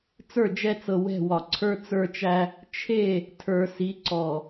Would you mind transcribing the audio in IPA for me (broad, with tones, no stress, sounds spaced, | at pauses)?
t͡s ə˞˦˨ d͡ʒ ɛ˦ t͡s ɤ˨ w ɛ̤˦˨ w ɒ˨ ǀʰ ə˞˦ t͡s ə˞˦ t͡ʃ æ˦ | t͡ʃʰ e˦˨ | tʰ ə˞˨ s i˨˦ ǀ ɔ˨